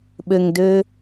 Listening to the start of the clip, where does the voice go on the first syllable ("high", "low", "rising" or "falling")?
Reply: low